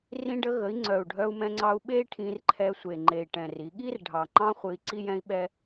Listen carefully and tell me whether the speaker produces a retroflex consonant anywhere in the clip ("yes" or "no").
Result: yes